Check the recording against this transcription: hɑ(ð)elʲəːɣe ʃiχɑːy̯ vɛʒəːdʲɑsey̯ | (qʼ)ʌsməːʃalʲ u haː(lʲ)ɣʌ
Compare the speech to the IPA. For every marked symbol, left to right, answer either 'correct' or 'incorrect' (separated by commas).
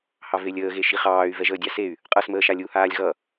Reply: incorrect, correct, correct